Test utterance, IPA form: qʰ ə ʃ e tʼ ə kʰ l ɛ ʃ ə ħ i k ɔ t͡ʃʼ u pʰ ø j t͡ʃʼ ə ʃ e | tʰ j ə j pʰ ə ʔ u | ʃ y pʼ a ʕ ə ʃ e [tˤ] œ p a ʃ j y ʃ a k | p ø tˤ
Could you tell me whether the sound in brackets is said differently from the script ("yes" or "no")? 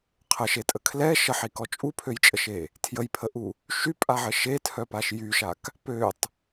yes